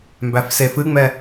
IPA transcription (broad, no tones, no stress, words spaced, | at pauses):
mbæfsefɨŋ͡mɛ